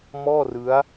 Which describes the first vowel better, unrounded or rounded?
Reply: rounded